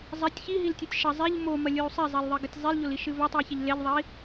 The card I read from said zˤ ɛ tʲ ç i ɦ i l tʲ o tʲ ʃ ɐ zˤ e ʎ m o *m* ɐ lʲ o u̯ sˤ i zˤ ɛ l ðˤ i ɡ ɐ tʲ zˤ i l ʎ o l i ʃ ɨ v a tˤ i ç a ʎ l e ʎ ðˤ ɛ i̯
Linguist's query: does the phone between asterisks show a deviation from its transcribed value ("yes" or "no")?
no